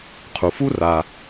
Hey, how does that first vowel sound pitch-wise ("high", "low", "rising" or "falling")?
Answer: low